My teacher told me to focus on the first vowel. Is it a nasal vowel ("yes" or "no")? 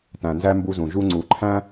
yes